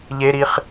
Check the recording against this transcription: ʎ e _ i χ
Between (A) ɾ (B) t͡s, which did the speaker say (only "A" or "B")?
A